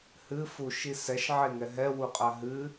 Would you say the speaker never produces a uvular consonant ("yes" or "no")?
no